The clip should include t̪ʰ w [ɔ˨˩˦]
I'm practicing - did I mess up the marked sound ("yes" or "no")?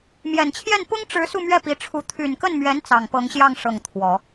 no